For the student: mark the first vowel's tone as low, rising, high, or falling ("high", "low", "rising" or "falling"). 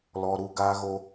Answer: high